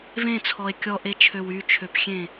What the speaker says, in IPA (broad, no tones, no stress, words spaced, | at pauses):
vẽt͡sʰɔe̯ kʲɔʔet͡ʃʰøw yt͡ʃʰøpxʲẽ